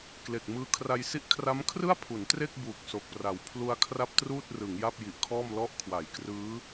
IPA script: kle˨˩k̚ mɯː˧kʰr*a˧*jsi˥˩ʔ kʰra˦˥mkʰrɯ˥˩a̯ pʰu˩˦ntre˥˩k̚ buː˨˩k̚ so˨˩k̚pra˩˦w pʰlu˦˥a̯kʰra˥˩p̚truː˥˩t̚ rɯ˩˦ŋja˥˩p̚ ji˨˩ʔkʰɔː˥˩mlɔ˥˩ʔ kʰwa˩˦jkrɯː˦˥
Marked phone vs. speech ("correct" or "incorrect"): correct